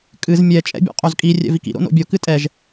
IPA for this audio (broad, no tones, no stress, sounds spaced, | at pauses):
kʼ ɨ z mʲ ɛ t͡ʃʼ ɛ̰ bʲ o̰ qʼ o z kʼ i rʲ ɛ̰ v i k ḭ ɾ o̰ n o̰ bʲ o k ɨ tʼ ɛ ʒ